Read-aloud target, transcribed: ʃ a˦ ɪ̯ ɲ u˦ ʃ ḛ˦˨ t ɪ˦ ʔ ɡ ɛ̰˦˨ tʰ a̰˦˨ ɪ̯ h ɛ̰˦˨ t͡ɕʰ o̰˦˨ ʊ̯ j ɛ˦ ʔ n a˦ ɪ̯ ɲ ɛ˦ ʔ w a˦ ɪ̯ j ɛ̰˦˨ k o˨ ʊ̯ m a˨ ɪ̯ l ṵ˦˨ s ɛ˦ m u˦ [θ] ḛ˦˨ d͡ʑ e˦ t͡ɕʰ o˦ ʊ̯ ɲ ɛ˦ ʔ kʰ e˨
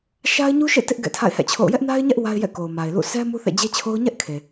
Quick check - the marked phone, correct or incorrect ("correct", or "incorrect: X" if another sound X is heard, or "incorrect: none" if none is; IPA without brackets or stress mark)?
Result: correct